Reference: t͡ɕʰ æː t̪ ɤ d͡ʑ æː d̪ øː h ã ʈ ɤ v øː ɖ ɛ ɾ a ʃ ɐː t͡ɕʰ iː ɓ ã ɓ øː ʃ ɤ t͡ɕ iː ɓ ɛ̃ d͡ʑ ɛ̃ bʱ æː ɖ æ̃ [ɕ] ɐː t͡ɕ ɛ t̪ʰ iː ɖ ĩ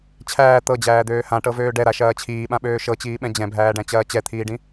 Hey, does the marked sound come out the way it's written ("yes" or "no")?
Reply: no